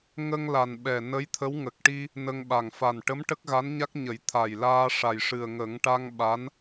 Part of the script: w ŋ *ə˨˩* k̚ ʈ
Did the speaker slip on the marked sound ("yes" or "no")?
no